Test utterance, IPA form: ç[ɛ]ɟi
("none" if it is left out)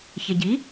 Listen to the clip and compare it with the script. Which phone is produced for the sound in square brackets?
ɛ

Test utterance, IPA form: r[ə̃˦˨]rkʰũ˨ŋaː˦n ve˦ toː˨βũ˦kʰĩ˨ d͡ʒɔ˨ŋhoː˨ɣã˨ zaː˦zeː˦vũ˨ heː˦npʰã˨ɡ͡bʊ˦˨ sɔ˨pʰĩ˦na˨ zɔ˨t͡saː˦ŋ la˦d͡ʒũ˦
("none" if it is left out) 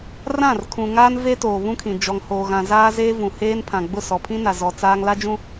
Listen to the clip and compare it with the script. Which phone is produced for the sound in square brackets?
ã˦˨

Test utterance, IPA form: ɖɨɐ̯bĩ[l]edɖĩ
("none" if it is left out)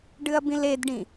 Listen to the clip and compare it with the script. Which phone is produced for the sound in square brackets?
l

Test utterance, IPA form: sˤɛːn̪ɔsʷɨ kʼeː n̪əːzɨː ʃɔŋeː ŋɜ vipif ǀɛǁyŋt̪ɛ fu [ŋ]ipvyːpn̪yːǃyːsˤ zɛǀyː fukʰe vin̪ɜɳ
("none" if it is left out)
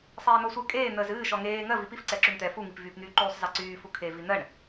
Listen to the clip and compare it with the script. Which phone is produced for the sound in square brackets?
ŋ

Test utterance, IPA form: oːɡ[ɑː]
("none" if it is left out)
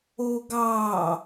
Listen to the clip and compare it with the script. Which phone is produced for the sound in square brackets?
ɑː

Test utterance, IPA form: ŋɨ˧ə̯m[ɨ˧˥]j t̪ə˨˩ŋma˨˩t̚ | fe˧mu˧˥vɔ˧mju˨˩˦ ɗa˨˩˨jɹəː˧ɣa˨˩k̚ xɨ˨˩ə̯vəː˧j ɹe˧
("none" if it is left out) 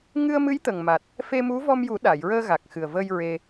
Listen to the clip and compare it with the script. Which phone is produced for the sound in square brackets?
ɨ˧˥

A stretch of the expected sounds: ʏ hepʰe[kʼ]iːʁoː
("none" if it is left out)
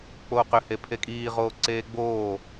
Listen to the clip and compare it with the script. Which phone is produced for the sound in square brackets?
kʼ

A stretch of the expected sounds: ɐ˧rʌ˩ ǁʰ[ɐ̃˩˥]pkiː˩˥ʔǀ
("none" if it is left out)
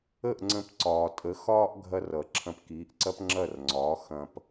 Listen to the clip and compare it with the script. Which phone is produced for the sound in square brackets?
ɐ̃˧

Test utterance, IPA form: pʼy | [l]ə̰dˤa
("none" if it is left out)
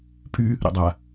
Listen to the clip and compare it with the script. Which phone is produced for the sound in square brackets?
ɾ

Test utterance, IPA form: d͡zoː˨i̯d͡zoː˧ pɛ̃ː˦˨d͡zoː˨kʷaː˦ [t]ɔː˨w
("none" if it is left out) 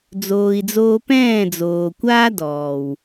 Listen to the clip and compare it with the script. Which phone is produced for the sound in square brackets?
d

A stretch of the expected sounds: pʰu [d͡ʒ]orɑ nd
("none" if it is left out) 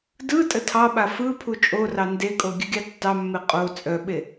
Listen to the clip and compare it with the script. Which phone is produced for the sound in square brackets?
t͡ʃʼ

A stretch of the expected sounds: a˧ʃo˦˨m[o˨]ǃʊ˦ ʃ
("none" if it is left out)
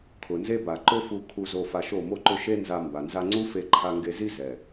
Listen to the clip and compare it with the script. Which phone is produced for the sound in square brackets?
o˦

